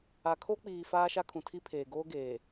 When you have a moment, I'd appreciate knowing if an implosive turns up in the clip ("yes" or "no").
no